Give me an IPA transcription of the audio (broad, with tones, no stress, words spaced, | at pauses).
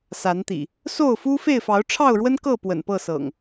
sa˨˦nt̪ḭ˨˩ | so˥˨ʊ̯fu˦ fe˥˨ɪ̯fɑ˨˦ʊ̯ʈ͡ʂʰɑ˥˨ʊ̯ɻwə˦n kɤ˥˨ pwə̰˨˩npɤ˥˨sɤ̰˨˩ŋ